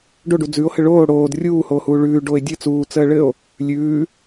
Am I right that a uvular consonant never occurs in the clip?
yes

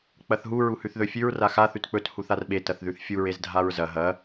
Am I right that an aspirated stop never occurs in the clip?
yes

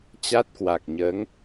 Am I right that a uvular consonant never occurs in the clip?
yes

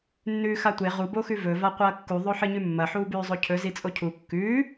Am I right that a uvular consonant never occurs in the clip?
no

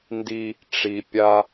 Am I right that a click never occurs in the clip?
yes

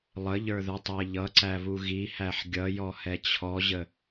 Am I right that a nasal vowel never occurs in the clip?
yes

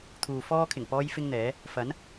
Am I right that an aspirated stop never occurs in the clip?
no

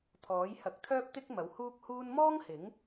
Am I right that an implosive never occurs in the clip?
yes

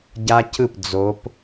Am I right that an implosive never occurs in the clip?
yes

